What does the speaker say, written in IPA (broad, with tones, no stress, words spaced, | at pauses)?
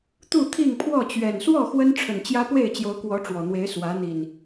t̪u˥˨t̪ʰi˥˨ŋpʰwɔ˥˨ t͡ɕɥɛ˨˩nswɔ˥˨ xwə˦nʈ͡ʂʰə˨˩n t͡ɕjä˦ pwe˥˨ɪ̯t͡ɕjo˨˦ʊ̯kwɔ˨˦ ʈ͡ʂwɔ˨˩n̪we˨˦ɪ̯ swä˨˦n̪i˨˩n